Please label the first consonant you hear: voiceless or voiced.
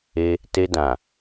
voiceless